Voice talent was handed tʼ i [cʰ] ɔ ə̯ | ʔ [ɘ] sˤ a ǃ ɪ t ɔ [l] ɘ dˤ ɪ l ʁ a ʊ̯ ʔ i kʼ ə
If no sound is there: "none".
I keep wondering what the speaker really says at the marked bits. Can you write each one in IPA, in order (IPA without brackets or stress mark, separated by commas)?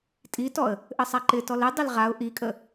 t, ɘ, l